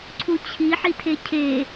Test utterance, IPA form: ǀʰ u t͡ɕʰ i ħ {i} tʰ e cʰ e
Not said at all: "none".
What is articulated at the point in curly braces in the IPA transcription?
i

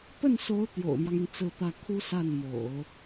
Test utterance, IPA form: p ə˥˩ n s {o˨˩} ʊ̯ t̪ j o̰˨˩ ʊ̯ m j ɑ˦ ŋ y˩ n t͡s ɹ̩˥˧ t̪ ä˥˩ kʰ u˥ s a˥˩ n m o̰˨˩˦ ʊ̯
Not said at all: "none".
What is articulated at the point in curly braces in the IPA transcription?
o˧˥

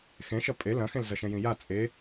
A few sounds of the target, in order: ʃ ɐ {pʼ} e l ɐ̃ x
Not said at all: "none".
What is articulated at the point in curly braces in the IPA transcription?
pʼ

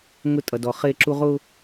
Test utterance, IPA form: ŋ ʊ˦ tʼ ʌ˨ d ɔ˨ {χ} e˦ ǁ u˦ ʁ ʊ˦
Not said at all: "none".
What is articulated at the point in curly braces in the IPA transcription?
χ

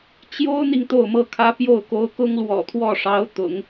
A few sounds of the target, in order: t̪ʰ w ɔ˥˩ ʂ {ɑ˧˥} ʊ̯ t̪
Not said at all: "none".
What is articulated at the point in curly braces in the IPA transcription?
ɑ˧˥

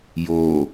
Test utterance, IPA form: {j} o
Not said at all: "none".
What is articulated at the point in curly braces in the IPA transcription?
j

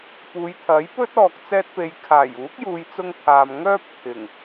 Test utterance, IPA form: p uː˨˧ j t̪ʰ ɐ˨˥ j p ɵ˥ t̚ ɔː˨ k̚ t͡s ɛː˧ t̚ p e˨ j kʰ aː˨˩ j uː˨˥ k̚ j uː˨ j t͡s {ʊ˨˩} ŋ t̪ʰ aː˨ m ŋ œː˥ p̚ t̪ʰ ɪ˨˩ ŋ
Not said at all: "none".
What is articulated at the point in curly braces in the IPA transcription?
ʊ˧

